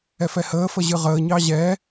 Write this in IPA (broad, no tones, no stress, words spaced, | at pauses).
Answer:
ɛfɛhəːfə ʑɨʁəːɲɑ ʑɛ